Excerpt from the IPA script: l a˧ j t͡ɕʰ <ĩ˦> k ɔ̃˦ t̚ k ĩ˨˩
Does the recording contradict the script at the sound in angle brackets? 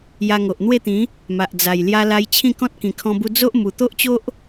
yes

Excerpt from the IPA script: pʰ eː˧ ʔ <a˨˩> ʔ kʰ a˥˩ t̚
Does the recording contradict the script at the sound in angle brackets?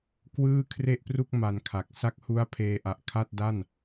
no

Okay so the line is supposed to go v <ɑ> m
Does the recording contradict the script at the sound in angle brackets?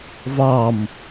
no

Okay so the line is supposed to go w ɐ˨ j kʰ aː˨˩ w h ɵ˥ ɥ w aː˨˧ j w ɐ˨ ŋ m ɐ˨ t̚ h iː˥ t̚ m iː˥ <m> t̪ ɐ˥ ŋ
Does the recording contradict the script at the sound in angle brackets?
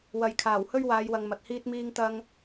yes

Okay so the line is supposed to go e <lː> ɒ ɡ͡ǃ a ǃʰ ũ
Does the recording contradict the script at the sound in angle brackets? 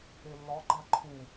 no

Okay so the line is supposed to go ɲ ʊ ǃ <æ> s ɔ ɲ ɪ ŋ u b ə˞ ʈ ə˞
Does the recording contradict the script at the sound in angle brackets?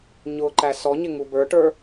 no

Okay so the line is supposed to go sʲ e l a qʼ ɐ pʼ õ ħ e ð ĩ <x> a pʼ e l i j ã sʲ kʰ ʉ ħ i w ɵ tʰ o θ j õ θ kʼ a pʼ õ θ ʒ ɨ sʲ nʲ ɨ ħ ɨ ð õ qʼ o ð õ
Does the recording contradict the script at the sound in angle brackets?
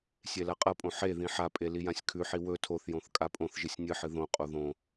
yes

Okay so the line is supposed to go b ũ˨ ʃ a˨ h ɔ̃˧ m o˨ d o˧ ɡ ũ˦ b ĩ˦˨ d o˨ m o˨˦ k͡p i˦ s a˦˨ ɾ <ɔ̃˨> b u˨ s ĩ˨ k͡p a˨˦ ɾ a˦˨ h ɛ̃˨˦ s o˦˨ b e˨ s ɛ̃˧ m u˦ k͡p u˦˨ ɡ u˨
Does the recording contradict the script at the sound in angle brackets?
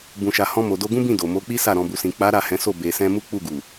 no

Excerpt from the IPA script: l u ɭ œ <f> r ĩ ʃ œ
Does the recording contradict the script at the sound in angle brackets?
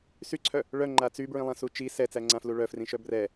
no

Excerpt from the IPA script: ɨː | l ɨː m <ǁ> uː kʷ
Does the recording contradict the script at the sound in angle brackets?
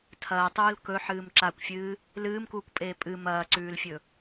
yes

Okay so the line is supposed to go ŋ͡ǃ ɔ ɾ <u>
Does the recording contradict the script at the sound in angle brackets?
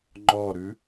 yes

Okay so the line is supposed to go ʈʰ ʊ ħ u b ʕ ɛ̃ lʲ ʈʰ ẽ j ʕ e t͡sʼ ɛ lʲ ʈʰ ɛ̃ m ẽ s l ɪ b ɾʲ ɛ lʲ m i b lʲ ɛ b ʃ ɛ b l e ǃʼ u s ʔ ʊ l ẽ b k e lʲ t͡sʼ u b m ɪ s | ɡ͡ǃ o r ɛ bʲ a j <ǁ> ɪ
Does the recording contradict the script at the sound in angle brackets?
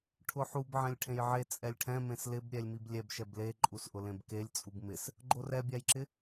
no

